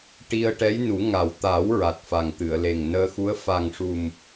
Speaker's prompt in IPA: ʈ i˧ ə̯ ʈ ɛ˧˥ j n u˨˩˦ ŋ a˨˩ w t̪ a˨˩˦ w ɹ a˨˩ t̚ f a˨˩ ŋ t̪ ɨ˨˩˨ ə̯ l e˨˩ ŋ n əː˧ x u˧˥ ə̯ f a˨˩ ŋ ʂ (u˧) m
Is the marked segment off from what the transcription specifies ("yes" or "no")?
yes